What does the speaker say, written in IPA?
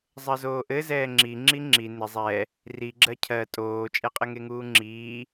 zˤ ɜ z oː ʔ ɘ z ɛː ŋ͡ǁ i ŋ͡ǁ i ŋ͡ǁ i n ɪ zˤ ɛ | r i ɡ͡ǁ ɜ cʰ ɜ tʼ oː t͡ʃʼ ɛ qʼ ɛ ŋ e ŋ uː ŋ͡ǁ iː

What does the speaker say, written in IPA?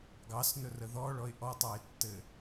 ɡ ɑ s n ɵ r ə ð ɔ ɭ ɔ ɪ̯ ʔ ɔ tˤ ɑ ɪ̯ tː ɘ

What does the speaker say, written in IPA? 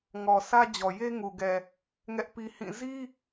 ŋ ɔ˨ sʰ ä˦ d͡ʑ ɔ˨ j e˦ ŋ u˨ ɡ ɛ˨ | ŋ ɛ˦ ʔ p i˦ h ĩ˦˨ z i˦

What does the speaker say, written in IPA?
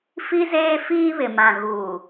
f i˦ z eː˦ f iː˦ β ɪ˨ m ã˨ ɣ uː˨

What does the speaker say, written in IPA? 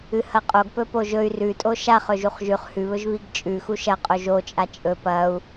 ɨ h ɐ qʼ o ɡ p ɵ p o ʒ ɵ y̯ r ʉ tʼ o ʃ a χ ɵ ʒ u χ ʒ ʉ χ h ʉ β ɵ ʒ β i ɡ t͡ʃʼ ʉ x u ʃ ɐ qʼ o ʒ o t͡ʃʼ a t͡ʃʼ ɵ p ɐ u̯

